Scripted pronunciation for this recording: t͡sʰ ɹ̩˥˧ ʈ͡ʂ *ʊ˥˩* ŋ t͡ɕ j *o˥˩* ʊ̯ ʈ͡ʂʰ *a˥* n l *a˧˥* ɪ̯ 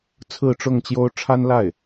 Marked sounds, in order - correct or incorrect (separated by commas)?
correct, incorrect, correct, incorrect